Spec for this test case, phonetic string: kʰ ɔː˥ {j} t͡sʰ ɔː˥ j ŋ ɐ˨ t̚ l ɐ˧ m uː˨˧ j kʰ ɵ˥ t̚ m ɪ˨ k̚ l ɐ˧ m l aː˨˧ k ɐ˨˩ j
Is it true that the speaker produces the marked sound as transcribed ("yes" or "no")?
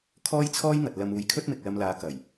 yes